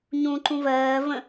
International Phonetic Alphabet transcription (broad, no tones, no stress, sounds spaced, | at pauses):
ɲ ũ ǃ ũ v ɜː v ə̃